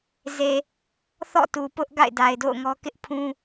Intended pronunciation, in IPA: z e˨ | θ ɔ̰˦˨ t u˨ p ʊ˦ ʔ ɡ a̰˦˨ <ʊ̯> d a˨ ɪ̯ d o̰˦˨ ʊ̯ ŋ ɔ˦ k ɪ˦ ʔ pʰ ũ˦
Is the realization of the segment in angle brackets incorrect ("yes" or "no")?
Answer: yes